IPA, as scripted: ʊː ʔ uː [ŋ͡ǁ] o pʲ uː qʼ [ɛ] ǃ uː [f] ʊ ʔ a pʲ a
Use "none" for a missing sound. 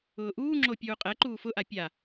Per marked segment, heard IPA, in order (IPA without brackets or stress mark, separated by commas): ŋ͡ǁ, ɛ, f